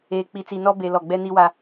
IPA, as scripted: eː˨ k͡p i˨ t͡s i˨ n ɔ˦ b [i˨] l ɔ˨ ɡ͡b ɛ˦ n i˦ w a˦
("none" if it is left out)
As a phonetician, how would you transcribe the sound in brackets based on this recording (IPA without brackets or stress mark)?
e˨